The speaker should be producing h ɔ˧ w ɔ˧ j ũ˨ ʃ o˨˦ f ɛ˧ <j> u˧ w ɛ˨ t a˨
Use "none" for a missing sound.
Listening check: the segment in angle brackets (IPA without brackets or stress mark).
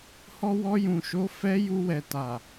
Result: j